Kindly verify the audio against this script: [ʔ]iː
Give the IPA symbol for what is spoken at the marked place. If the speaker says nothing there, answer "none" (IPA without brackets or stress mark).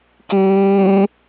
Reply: k